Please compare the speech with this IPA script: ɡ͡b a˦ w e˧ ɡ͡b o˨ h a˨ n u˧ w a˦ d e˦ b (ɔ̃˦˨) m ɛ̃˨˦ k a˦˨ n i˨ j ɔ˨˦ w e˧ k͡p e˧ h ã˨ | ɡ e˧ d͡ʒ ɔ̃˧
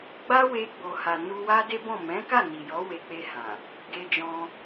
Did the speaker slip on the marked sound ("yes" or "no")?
no